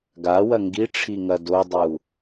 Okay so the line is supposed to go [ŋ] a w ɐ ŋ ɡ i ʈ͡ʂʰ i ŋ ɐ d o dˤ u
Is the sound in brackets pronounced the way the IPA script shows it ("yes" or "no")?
no